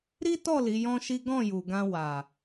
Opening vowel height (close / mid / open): close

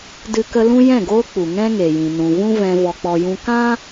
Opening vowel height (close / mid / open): close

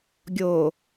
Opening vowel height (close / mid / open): mid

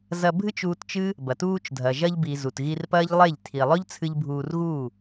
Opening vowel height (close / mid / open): open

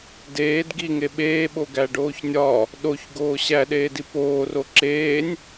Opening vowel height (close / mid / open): mid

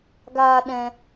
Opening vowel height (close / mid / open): open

